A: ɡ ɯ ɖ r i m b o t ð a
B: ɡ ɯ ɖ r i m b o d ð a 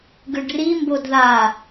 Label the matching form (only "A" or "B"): B